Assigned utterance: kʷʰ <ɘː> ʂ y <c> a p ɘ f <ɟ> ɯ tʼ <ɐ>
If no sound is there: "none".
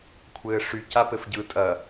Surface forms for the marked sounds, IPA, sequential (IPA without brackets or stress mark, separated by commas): ɘː, c, ɟ, ɐ